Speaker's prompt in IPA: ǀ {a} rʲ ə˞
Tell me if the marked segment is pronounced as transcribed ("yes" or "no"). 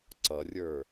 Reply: no